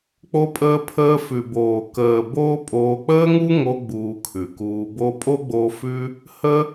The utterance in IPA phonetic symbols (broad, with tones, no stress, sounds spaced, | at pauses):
k͡p o˧ pʼ əː˧ pʰ əː˧ f ʉ˨ b oː˨ k əː˨ b oː˦ pʼ oː˧ k͡p əː˦ ŋ u˦ ŋ o˧ ɡ͡b uː˧ kʰ ʉ˨ k uː˧ b o˧ pʼ o˦ ɡ͡b oː˧ f ʉ˦ | h ə˦